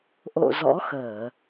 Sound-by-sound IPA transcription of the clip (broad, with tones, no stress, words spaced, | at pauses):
ʔo̰˧˨ zɔ̰˧˥xəː˧˩˨